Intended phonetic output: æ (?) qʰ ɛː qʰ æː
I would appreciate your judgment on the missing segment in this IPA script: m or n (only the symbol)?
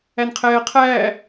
n